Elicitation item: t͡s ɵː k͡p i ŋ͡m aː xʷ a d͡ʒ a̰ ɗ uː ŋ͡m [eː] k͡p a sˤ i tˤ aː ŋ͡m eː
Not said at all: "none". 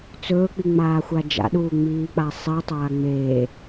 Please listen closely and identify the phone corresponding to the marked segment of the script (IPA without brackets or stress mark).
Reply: iː